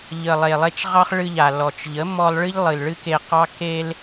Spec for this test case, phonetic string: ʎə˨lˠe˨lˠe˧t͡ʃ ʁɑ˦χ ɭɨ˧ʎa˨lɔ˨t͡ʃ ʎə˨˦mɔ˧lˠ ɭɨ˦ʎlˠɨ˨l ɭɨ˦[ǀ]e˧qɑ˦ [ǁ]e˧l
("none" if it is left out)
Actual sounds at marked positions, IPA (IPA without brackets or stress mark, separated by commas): k, k